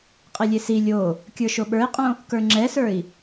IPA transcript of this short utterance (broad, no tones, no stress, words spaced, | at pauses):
qʼilʲesi lʲo | kʲə˞ʃoɓə˞i̯qʼõ | kə˞ŋ͡ǁɛsə˞i̯